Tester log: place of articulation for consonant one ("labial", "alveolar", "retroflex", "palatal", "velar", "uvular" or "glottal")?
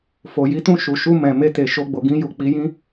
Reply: labial